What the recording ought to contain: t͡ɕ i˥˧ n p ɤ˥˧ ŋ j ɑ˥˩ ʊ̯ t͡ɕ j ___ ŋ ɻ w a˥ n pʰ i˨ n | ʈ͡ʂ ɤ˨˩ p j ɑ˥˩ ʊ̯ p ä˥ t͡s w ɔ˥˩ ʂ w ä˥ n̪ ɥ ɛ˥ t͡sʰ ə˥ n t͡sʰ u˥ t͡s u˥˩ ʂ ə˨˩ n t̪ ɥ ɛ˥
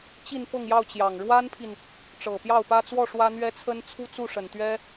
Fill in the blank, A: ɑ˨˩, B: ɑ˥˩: A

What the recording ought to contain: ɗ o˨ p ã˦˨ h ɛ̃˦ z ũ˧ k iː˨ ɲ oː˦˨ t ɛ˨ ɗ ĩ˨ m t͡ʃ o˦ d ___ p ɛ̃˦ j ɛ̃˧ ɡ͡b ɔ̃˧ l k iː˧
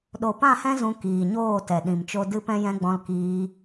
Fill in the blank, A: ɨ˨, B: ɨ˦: B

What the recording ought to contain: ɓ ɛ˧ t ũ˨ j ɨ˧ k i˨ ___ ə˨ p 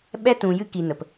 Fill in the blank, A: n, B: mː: A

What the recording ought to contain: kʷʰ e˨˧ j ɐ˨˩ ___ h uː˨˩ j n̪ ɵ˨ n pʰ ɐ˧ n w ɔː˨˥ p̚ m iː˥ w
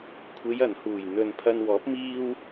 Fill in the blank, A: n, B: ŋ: A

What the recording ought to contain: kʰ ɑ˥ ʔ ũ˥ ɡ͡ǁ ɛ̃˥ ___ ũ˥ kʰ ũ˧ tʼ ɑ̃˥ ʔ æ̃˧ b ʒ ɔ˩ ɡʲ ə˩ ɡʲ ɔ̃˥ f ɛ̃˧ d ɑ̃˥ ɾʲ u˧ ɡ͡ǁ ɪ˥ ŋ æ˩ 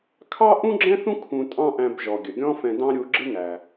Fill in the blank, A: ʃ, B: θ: B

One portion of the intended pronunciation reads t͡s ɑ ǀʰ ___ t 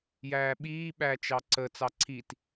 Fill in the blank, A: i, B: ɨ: A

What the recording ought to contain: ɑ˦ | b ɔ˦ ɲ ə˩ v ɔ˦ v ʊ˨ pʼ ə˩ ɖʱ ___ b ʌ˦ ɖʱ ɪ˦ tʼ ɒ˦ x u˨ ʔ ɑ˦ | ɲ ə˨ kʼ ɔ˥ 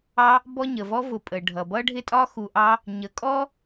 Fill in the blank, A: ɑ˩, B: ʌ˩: B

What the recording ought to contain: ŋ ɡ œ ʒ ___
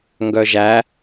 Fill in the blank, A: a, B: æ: B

